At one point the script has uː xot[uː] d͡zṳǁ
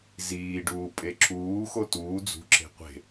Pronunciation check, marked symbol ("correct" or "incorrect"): correct